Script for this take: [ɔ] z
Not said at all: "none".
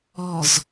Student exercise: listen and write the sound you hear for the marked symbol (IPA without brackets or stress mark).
ɔ